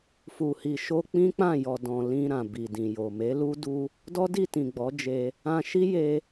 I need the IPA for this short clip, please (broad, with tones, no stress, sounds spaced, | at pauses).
f u˨ h i˨ ʃ o˧ k͡p ĩ˦ k͡p ã˦˨ j ɔ˨ d ɔ̃˨ l ĩ˧ ɾ ã˨ b i˨ d ĩ˨ j o˨ m e˨˦ l u˦ d u˦ | d ɔ˦ d i˦˨ t ĩ˨ ɡ͡b ɔ˨˦ d͡ʒ e˧ | ã˧ ʃ i˦ j e˧